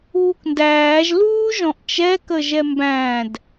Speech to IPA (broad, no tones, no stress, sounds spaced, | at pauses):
uː k n d æː ʒ l uː ʒ ɔ̃ ʔ t͡ʃ ɛ k ə ʒ ɛ m b æ̃ d